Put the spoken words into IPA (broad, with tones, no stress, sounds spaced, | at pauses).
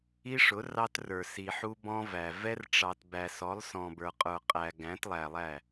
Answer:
i˦ ʂ ʊ˨˦ r ɑ˦ t r ə˞˨ s i˨ ħ u˦ b ɔ̃˦ v æ˨ v ɛ˦ r ʈ͡ʂ ɑ˨ t b æ˨ s ɔ˨˦ lˠ s ɔ̃˨ b ə˞˨ qʼ ə˞˨ qʼ æ˨ ɡ æ̃˨˦ t lˠ æ˨ lˠ æ˦˨